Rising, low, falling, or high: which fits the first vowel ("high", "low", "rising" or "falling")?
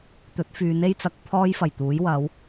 rising